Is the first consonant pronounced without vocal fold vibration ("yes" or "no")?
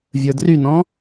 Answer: no